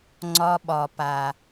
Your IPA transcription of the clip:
ŋ͡ǀɒ˧ɓɒ˨pa˨

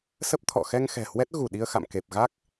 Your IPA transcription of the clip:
sə˦˥p̚t̪ʰɔ̰˧˨ xɛ˧ŋ xɛ̤˨˩hwɛ˦˥t̚ ɣu˧˩ ɗi˧ə̯xa̰˧˨mke˨˩p̚ ɣa˦˥k̚

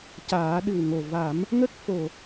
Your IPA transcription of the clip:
caː˨˩˦ɗɨ˨˩wŋo˨˩ va˨˩˦m | ŋə˦˥k̚fo˨˩

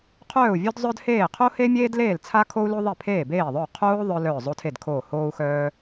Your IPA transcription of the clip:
qʰœː˥˩u̯vʲo˥dzˤœ˥d heː˥˩ qʰo˥he˥mʲeː˥dleː˥˩l t͡sʰa˥kʰo˥u̯lo˥ ðˤe˥˩pʰeː˥˩beː˥˩ðˤœ˥˩u̯ qʰoː˥ ðˤœ˥ lœː˥˩zˤo˥tʰe˥˩dkʰoː˥˩ hoː˥u̯xœː˥

